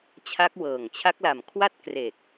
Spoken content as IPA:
t͡ɕʰ a˦˥ k̚ w ɤː˨˩ ŋ t͡ɕʰ a˦˥ k̚ l a˨˩ m kʰ w a˥˩ t̚ k r e˨˩ k̚

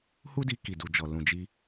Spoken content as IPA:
h u˦ d i˧ k i˨ d u˨ d͡ʒ ɔ˨ l ũ˨ d͡ʒ i˧

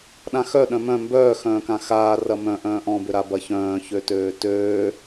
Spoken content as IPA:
ɗ ã x œ ɗ œ̃ m œ̃ m b œː x œ̃ː k ã x aː r ɐ m œ̃ ʔ œ̃ː ʔ ɔ̃ b ʏ ɾ a b ɐ ç œ̃ː ç ø t øː t øː

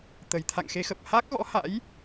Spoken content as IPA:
t̪ ə˨˩ j t̪ʰ a̰˧˨ ŋ x e˨˦ x ə˨˩ p̚ h a˦˥ k̚ ɣ ɔ̰˧˥ h a̰˧˥ j

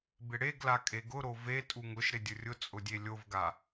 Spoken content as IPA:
b ɪ ɽ e ɡ l a kʼ e ɡ ʊ ɾ o v e tʼ u ŋ ʊ ʃ ɾ ɪ dʲ ʊ rʲ ʊ t͡sʼ ʊ dʲ e lʲ o v ɡ a

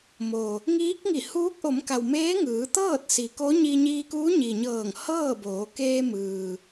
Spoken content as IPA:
m o˩ | ŋ iː˧˥ k̚ ŋ i˧˩ h uː˧˥ k̚ ʔ o˩˧ m k a˩ w m eː˧˥ ŋ ɯː˩˧ t̪ ɤː˥˨ t̚ s i˩ k o˧˥ ɲ i˧ ɲ iː˧ k uː˧˥ ɲ i˩ ɲ ɤː˧˩ ŋ h ɤː˥˨ b oː˩˧ k eː˧ m ɯː˩

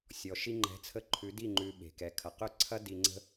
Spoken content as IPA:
sʲ ɔ˨ ʃ i˧ ŋ͡ǃ ɛ̤˨˦ t͡sʰ ə˧ ǃʰ ʉ˨˦ d i˦˨ ŋ͡ǃ ʉ˧ ɓ e̤˨ k ɛ˨ kʰ ɐ˨ q ʏ˦˨ ǀʰ ɐ˦ d i˧ ŋ͡ǀ ə̤˦

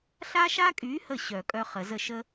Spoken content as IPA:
ɬ a˦ ʃ a˦ kʼ y˨˦ h ə˧˩ ɕ œ˨˩˦ kʼ œ˦ χ ə˨˩˦ z ə˥˩ ʃ ə˦

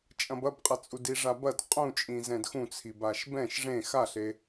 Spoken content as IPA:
t͡ʃʼ ɐ̃ b ɐ b qʼ ɐ t͡sʼ u d i ʐ a b ɐ d qʼ ũ t͡ʃʼ ĩ z ɛ̃ d x ũ t͡sʰ i b a ʃ b ɛ̃ ʃ ʐ ẽ x a ɬ e

